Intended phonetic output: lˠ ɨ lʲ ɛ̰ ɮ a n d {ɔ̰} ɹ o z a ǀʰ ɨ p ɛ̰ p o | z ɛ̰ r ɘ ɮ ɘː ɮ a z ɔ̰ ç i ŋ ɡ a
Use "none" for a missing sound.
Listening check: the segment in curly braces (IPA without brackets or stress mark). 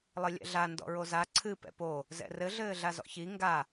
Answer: ɔ̰